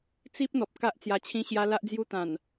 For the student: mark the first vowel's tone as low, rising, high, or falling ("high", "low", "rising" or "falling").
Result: high